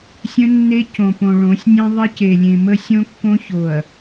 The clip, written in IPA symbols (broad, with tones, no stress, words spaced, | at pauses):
sʲə̃˦nːe˦ cõ˨põ˨ɭõ˨˦sʲnʲẽ˦ ðˤe˦ce˨lʲẽ˨ mə˦sʲõ˦kːõ˦ ço˨ɐ̯